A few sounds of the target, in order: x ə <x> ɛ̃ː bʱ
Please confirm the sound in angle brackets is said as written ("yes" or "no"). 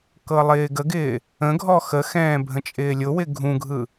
yes